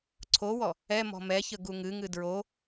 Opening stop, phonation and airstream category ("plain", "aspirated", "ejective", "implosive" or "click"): click